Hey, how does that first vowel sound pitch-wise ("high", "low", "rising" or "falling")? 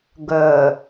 low